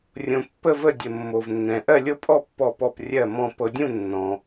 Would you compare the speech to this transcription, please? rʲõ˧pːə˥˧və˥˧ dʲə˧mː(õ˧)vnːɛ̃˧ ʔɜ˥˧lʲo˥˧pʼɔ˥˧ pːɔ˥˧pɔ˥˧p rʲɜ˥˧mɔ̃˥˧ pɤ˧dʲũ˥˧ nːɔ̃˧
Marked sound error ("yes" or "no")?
yes